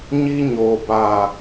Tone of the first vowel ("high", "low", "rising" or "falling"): high